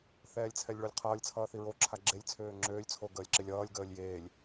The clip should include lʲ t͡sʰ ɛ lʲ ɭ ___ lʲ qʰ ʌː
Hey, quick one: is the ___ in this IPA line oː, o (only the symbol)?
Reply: o